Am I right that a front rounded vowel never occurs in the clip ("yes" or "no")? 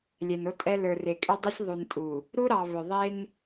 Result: no